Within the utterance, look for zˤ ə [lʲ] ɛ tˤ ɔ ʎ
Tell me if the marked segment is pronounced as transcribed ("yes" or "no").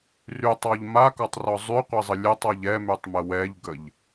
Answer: yes